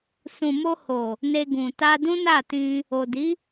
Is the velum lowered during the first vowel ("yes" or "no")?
yes